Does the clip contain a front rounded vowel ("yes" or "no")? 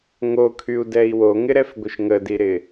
yes